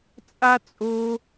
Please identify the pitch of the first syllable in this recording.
high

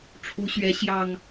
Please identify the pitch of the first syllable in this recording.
rising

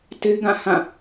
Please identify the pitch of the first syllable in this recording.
high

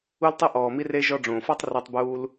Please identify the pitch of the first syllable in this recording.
high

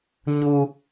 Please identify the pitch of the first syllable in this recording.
low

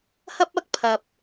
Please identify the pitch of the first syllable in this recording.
high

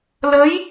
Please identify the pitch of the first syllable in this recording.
rising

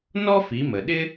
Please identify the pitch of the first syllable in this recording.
high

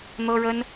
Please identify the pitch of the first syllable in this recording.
high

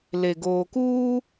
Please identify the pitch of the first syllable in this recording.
low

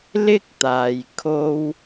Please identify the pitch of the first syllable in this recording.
high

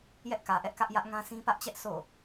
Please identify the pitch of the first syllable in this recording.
high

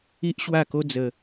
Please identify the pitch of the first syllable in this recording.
high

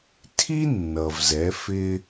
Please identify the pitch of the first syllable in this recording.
high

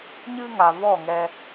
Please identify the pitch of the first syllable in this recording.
high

